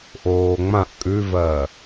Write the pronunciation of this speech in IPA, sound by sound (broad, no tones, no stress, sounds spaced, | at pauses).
ʔ oː ŋ͡m ã ʔ kʼ ʉ v ɜ